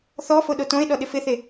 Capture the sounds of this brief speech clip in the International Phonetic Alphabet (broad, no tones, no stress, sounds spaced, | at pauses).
θ ɔ f o ɗ o t õ e̯ ɗ ɔ ɗ ɪ f ɪ θ e